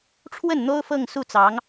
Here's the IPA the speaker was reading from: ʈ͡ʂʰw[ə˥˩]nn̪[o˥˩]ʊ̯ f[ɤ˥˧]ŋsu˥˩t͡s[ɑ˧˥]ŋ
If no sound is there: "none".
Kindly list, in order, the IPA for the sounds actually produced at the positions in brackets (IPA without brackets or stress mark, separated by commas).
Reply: ə˥˩, o˥, ɤ˥˧, ɑ˧˥